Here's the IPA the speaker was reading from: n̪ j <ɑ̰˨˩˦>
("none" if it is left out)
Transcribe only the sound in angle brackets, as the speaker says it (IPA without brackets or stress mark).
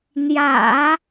ä̰˨˩˦